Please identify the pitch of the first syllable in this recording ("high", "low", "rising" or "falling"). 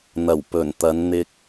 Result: low